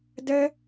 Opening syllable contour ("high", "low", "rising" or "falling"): high